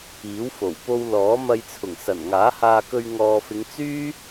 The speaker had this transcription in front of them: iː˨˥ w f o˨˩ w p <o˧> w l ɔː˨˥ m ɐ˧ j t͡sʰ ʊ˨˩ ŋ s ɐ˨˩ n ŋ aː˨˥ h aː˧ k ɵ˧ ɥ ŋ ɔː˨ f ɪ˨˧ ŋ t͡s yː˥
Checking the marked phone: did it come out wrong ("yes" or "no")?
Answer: no